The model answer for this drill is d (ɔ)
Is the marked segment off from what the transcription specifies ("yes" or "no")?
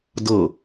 yes